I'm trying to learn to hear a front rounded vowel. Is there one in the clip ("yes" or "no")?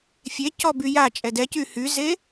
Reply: yes